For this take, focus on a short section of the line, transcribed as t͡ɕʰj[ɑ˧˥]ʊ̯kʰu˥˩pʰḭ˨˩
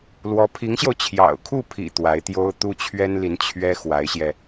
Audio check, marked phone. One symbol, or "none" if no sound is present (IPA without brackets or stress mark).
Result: ɑ̰˨˩